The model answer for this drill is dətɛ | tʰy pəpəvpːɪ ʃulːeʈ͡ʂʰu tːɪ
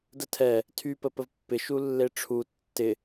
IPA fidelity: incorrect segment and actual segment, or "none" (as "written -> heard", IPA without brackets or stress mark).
t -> tʰ